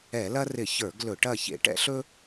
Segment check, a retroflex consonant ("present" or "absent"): present